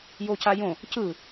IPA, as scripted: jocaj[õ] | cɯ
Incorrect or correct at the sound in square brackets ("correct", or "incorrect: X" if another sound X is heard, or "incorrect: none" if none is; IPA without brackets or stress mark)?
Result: correct